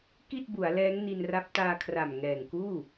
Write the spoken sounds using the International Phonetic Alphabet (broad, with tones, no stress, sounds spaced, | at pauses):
k i˥˩ t̚ b u˩˦ a̯ l ɛː˦˥ ŋ n i˧ n r a˦˥ p̚ t aː˧ kʰ r a˨˩ m ŋ ɛː˨˩ ŋ k uː˥˩